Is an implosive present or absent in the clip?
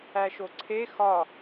absent